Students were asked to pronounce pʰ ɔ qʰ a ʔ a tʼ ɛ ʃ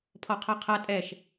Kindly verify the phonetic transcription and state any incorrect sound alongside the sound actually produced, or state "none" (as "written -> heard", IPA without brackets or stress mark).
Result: ʔ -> qʰ